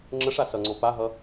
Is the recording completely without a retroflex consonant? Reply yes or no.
no